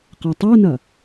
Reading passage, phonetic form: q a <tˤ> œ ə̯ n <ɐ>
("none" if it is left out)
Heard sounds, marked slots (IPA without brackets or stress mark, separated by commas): tˤ, ɐ